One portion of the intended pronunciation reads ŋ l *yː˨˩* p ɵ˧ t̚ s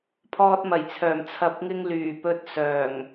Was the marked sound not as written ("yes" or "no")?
no